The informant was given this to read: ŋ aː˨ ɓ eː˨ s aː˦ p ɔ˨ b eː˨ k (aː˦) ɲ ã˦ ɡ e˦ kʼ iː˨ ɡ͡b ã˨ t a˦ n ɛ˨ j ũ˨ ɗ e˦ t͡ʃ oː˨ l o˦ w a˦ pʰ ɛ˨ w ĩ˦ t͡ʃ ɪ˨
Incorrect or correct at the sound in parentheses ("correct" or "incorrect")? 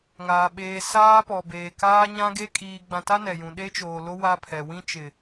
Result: correct